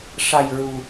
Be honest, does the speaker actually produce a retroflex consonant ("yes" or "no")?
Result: yes